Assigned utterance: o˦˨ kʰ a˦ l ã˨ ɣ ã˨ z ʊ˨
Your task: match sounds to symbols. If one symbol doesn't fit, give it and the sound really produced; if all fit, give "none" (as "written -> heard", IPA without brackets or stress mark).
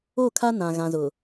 l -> n